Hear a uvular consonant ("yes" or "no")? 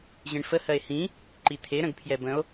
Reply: no